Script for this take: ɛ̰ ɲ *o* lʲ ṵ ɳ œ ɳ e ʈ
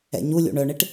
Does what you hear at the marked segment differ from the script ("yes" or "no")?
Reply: yes